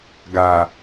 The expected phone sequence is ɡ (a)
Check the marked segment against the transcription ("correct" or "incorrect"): correct